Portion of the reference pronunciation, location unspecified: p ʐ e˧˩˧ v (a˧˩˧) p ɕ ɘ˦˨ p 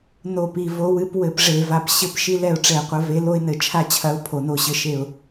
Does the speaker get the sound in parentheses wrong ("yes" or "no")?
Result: yes